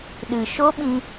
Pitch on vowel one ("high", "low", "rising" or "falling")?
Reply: low